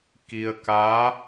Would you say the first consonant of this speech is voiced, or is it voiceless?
voiceless